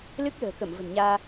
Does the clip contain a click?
no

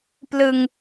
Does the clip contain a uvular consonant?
no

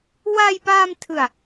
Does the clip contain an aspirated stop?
yes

